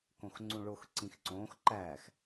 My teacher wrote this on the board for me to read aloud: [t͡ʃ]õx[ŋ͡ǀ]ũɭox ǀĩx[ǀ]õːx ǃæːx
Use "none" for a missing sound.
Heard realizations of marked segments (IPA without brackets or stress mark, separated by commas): k, ŋ͡ǀ, ǀ